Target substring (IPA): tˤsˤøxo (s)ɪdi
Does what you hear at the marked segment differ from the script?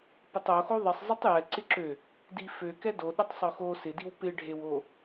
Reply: no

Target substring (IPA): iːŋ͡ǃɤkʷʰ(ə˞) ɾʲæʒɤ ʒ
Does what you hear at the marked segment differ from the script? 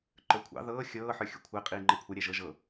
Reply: yes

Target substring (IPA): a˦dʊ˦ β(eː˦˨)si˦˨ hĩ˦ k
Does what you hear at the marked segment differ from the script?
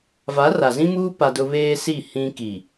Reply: yes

